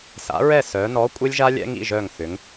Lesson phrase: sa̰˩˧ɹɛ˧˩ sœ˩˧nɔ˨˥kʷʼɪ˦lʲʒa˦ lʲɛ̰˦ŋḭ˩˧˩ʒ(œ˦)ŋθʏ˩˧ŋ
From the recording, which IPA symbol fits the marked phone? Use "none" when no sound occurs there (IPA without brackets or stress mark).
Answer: œ˧˩